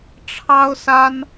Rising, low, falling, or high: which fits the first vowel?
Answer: high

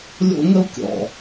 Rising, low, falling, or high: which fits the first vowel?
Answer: high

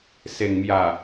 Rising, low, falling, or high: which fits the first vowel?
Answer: low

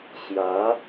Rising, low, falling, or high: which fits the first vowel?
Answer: rising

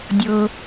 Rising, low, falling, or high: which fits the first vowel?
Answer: low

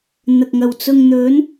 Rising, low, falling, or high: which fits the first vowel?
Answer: low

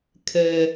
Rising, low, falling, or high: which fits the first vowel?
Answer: low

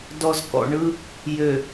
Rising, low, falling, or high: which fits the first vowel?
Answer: low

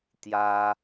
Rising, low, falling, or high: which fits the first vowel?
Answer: high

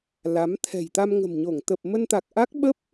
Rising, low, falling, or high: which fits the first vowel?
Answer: rising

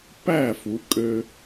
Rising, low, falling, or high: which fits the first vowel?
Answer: falling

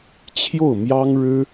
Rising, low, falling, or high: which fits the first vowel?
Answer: falling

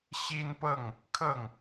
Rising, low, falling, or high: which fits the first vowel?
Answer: high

